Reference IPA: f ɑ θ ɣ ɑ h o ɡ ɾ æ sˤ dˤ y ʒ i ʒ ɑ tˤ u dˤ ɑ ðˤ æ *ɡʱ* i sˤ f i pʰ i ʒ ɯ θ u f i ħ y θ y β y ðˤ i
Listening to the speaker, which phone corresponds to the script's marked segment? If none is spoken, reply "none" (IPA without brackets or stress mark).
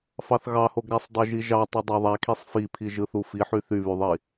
kʰ